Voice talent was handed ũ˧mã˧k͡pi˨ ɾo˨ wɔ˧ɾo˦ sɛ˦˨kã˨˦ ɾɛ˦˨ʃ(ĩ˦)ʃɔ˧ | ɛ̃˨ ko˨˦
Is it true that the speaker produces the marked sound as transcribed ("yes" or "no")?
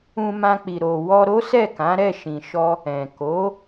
no